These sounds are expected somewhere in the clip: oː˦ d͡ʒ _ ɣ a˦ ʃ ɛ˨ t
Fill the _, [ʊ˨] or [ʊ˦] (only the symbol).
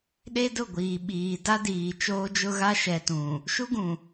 ʊ˦